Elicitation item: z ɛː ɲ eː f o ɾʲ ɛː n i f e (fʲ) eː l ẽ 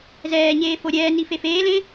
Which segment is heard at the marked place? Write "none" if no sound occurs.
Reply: f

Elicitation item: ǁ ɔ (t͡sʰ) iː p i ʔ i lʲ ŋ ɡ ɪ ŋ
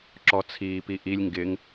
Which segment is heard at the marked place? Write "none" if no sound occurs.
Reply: t͡sʰ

